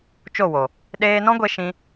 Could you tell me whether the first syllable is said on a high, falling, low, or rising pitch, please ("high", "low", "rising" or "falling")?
falling